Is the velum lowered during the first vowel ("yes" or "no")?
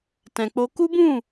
yes